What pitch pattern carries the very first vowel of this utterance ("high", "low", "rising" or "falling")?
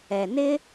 low